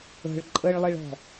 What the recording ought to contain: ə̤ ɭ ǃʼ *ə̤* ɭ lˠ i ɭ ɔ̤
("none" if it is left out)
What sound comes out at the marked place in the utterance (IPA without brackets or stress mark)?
ə